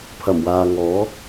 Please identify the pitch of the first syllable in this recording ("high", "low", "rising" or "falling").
low